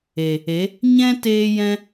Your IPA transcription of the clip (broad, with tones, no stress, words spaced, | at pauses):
e˨ | e˨˦ | ɲɛ̃˦ teː˦ jɛ̃˦